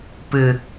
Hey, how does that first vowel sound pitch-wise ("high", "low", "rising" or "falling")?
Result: low